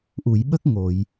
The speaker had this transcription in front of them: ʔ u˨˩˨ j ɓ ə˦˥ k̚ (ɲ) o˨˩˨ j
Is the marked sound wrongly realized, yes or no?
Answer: yes